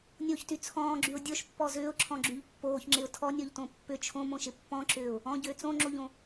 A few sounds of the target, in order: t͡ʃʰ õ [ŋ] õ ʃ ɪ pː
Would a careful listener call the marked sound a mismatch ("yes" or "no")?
yes